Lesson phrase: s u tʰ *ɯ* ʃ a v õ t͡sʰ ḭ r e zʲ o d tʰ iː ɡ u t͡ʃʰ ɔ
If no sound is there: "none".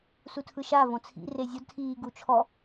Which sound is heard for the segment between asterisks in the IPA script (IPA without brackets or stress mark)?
ɯ